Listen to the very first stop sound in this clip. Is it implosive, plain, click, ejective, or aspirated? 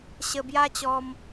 plain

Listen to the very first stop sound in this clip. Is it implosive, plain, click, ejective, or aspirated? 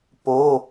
plain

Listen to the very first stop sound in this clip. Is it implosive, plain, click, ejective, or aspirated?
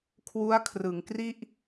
aspirated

